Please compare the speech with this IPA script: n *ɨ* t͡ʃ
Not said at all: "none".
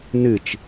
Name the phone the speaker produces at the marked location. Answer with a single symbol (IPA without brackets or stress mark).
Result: ɨ